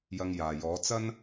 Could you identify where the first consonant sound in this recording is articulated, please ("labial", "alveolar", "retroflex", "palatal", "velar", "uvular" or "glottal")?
palatal